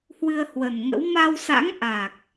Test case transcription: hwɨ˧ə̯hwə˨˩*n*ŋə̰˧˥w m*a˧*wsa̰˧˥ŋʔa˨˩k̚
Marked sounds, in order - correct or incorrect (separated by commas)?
correct, correct